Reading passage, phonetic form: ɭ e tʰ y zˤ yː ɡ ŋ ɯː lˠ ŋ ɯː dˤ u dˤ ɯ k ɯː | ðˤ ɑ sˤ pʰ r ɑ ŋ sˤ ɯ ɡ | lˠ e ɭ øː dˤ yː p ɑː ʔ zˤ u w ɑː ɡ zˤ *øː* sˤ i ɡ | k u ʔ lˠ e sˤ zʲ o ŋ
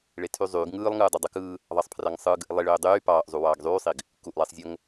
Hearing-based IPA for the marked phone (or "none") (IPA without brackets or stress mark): yː